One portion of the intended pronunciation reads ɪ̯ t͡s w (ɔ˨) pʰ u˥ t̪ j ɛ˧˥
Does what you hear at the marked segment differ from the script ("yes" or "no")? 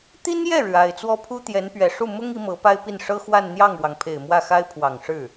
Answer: yes